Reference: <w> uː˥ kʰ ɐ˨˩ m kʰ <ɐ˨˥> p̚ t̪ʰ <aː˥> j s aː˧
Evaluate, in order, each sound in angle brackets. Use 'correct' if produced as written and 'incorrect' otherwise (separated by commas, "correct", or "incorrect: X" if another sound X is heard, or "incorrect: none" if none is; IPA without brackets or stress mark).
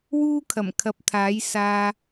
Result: correct, correct, incorrect: aː˨˥